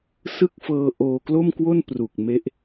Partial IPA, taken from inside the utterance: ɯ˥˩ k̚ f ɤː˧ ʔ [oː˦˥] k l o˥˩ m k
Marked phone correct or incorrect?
incorrect